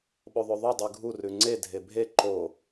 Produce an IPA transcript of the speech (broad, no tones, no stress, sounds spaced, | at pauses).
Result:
ɓ o ðˤ o ðˤ ʉ dˤ ʉ ɡʱ u r ʉ ŋ͡ǀ e dʱ e bʱ e ǃ o